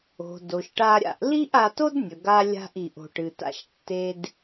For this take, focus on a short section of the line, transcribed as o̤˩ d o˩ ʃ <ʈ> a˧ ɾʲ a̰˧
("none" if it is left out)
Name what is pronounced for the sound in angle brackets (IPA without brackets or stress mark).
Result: ʈ